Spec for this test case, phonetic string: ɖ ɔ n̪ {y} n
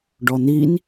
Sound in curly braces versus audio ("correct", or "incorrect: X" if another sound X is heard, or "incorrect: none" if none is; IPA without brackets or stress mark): incorrect: i